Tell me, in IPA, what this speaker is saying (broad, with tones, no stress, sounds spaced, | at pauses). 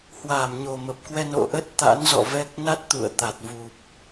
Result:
h w aː˧˩ m ɲ o˨˩ m ə˨˩ p̚ k w ɛ˧ n o̰˧˨ ʔ ə˦˥ t̚ t̪ a̰˧˥ n z ɔ̰˧˨ v ɛ˦˥ k̚ n a˦˥ t̚ t̪ ṵ˧˨ ə̯ t̪ a˨˩ t̚ v u˨˩ p̚